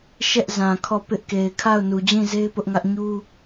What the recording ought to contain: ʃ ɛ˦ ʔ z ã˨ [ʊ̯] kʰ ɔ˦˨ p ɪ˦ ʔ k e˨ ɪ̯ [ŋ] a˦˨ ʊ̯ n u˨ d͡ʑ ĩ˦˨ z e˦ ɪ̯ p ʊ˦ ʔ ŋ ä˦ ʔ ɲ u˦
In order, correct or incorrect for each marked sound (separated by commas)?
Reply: incorrect, incorrect